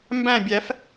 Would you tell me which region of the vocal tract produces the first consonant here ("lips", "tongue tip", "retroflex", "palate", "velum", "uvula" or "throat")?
lips